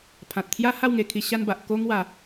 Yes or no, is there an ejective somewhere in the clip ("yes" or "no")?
no